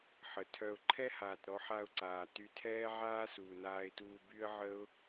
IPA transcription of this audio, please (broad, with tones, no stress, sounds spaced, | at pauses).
ħ ə˨ tʰ œ˧ ʊ̯ ǃʰ ɛ˦ h aː˨ t ɾ ɔ˧ ħ a˧ ʊ̯ ǀ aː˨ t y˧ tʰ ɛː˦ ʕ aː˦ s uː˨ n aː˧ ɪ̯ t uː˧ b y˦ ə̯ ʕ ə˦ ʊ̯